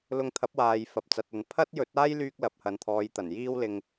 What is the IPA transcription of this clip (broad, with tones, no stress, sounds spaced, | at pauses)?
l ʊ˧ ŋ t̪ʰ ɐ˨˥ p̚ w aː˨ j f ɐ˨ p̚ t͡s ɐ˨ t̚ ɵ˨˥ n pʰ ɐ˥ t̚ j ɵ˨˥ t̚ aː˥ j l yː˥ k̚ l ɐ˨ p̚ h ɐ˨ n t̪ʰ ɔː˨˧ j t̪ ɐ˨˩ n j iː˥ w l ɪ˧ ŋ